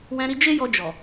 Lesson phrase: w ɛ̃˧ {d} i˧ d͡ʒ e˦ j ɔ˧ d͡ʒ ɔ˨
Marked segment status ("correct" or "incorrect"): incorrect